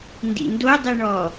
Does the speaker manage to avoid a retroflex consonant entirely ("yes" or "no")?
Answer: no